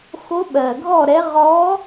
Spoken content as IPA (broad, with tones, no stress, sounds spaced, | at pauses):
x o˧˥ ɓ ɜ˨˩ ɡʱ ɔ˥˨ ɾ ɛ˧˥ ʁ ɔ˧˥